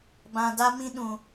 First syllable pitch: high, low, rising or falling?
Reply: low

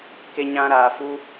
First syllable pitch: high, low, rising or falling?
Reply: high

